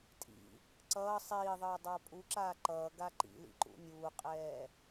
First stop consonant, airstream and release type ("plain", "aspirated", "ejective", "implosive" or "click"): ejective